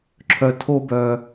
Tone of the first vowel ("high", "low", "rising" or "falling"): low